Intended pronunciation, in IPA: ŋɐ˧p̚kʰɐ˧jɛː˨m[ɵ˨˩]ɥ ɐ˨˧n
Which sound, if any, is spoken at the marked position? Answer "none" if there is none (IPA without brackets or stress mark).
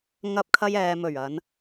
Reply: ɵ˨˩